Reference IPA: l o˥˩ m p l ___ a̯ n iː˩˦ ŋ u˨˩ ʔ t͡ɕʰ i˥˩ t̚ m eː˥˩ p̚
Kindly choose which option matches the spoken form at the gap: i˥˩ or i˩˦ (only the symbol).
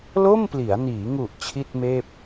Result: i˩˦